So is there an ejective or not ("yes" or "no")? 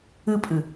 yes